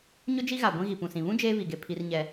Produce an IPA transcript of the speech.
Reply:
ɲ ʊ˦ d͡ʒ i˦ ɣ a˨ ɡʷ ĩ˦ ɣ i˨ p ũ˨ s ĩ˨ β ũ˦ d͡ʒ eː˦ β i˨ ɡ e˨ pʰ i˦ r ɲ ɛ˦

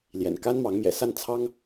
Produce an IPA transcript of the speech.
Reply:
l j ɛ̰˨˩ n k a˥ n m ɑ˧˥ ŋ m j ɛ̰˨˩ s a˥˩ n t͡sʰ ɑ˥ ŋ

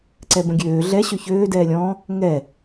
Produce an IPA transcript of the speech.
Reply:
ǀ ɛ b ə̃ ɡʲ øː ɮ ɛ ɕ ø ç øː d ɛː lʲ ɔ̃ | ŋ ɛ

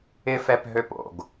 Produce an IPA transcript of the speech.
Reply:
ɪ f ɛ p ɦ ø p o̰ ɡ

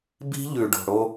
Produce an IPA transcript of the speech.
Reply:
b i̤˦ ʎ ʉ˨ ɖ o̤˨ ɽ o˦

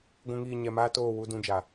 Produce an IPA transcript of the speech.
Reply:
ɡʷ ũ˨ ŋ iː˨ ɲ ɛ˨ m aː˦ t oː˦˨ w u˦ d ũ˦ d͡ʒ a˨

